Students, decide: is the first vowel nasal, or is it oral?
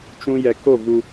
nasal